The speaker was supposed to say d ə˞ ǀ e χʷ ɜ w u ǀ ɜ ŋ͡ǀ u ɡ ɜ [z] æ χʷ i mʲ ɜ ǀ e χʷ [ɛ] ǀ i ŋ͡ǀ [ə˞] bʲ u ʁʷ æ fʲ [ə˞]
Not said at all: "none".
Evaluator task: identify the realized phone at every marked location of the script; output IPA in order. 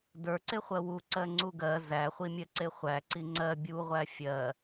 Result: z, æ, ɜ, ɜ

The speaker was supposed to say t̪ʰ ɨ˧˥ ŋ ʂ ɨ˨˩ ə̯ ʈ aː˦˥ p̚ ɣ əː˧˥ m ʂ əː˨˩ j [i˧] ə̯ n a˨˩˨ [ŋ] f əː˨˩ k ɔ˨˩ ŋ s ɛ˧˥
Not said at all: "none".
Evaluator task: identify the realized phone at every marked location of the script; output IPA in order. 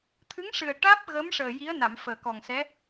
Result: i˧˥, m

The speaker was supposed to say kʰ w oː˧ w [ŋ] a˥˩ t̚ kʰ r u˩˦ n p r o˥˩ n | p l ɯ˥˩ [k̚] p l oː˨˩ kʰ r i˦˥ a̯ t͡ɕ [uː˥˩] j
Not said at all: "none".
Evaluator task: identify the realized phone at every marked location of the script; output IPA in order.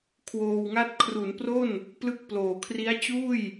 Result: ŋ, k̚, uː˥˩

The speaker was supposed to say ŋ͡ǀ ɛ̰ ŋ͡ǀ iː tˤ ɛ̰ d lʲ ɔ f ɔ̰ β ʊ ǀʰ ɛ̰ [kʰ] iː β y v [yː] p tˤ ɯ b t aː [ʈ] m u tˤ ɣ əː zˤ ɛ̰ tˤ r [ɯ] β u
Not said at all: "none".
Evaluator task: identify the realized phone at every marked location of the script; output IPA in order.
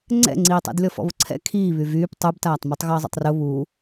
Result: kʰ, yː, tˤ, ʊ

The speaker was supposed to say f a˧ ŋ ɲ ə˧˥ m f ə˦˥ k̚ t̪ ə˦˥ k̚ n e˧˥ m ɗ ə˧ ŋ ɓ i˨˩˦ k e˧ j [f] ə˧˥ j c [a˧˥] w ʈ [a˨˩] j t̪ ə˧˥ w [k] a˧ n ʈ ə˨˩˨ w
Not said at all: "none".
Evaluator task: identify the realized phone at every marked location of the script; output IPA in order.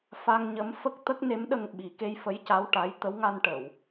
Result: f, a˧˥, a˧˥, ŋ

